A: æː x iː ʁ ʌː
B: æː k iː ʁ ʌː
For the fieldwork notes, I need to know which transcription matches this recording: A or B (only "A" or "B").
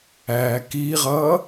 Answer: B